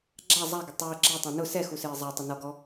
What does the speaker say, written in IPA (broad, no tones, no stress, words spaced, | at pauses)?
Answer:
ɡ͡ǁa zˤaɡʊ tˤʊː ɡ͡ǁatˤẽ nʊ sɛxusɪː zˤatˤɪ nɔɡɔ